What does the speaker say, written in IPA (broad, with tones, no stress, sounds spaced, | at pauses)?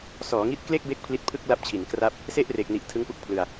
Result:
s ɔː˩˦ ŋ i˦˥ t̚ k l e˥˩ k̚ b e˦˥ k̚ pʰ l i˦˥ t̚ pʰ ɯ˥˩ k̚ l a˦˥ p̚ t͡ɕʰ i˩˦ n k r a˥˩ p̚ | s e˥˩ ʔ r e˨˩ k̚ n i˨˩ ʔ tʰ ɯ˦˥ ŋ p u˦˥ k̚ pʰ l ɯ˧ a̯